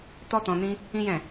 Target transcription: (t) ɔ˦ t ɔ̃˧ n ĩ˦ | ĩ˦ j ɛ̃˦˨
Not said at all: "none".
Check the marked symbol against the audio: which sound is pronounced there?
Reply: t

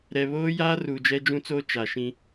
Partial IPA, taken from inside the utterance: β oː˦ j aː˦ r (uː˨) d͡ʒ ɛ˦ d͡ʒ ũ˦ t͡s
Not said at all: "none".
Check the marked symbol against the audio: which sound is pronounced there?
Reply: uː˨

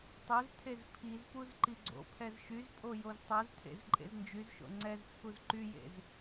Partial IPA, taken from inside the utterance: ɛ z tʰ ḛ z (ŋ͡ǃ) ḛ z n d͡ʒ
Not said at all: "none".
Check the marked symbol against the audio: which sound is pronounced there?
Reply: ǃʼ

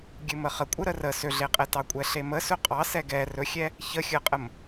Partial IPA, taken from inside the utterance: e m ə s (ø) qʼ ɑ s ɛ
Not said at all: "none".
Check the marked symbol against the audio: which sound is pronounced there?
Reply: ɵ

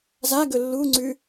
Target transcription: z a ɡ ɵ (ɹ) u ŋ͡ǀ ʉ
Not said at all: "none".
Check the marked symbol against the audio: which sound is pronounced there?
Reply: lː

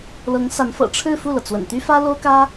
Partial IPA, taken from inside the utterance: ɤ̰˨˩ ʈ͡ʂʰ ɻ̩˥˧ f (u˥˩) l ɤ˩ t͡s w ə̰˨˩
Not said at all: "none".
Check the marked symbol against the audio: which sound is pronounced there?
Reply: u˥˩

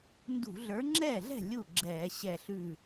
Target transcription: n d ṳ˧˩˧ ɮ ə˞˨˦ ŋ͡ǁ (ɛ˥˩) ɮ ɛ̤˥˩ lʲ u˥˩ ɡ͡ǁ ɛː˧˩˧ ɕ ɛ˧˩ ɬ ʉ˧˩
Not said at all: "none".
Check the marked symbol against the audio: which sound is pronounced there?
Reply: ɛː˥˩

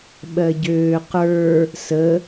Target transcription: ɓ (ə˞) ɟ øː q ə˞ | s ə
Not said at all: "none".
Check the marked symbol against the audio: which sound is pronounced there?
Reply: ɜ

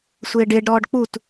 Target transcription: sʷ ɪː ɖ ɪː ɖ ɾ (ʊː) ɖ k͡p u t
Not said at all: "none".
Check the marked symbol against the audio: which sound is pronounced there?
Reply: ɔː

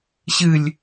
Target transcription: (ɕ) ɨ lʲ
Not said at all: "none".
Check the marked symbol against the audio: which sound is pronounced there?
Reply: ɕ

